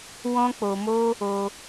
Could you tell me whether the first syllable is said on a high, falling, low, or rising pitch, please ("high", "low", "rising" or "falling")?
high